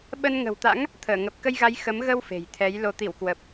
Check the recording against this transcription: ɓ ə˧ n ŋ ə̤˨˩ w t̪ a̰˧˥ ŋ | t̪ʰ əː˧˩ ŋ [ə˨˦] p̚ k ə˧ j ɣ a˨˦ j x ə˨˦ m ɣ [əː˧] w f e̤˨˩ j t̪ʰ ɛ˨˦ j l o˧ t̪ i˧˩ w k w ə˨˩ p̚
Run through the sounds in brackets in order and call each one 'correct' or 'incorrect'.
incorrect, incorrect

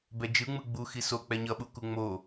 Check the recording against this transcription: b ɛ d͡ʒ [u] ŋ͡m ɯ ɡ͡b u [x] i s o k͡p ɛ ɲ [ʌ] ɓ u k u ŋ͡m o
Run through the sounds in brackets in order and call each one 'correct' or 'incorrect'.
incorrect, correct, correct

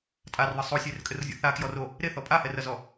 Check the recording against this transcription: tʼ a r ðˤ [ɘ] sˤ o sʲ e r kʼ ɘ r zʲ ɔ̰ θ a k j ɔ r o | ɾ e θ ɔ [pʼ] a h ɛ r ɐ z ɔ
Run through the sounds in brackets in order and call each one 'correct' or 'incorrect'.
correct, correct

